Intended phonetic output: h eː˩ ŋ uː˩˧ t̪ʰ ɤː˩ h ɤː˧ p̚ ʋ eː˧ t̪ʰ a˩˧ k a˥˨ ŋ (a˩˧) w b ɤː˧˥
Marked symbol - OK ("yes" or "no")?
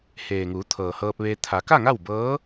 no